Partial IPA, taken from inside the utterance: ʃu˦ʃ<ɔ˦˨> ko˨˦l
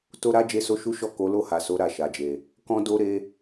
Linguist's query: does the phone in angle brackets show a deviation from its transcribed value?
no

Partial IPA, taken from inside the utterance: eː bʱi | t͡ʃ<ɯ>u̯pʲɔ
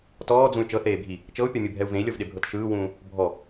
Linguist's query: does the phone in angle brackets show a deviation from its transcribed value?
yes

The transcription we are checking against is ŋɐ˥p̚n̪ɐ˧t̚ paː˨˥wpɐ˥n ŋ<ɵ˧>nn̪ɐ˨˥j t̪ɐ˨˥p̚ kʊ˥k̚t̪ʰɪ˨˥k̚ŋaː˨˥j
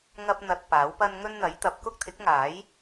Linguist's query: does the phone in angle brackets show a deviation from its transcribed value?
yes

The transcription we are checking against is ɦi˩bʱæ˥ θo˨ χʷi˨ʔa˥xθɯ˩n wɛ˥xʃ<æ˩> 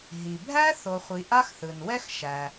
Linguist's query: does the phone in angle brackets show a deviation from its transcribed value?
no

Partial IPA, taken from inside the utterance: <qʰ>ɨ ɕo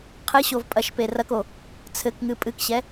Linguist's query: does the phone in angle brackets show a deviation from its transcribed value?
no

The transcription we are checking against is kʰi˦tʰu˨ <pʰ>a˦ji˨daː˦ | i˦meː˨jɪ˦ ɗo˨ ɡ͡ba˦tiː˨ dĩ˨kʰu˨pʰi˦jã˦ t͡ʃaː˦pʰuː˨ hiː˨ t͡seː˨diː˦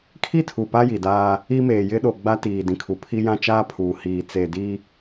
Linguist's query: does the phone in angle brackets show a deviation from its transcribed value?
yes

